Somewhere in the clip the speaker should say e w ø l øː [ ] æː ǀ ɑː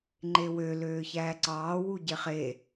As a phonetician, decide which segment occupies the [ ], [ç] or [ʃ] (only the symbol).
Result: ç